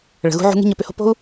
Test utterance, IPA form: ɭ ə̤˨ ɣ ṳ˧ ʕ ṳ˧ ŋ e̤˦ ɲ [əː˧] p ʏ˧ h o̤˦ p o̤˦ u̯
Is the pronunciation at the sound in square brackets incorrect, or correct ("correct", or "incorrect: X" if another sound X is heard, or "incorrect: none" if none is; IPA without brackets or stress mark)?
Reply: correct